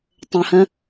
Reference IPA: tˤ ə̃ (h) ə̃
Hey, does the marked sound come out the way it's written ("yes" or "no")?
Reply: yes